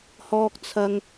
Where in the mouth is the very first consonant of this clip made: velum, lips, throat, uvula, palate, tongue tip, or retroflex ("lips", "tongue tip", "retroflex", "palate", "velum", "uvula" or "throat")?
throat